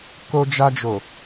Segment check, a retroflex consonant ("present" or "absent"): absent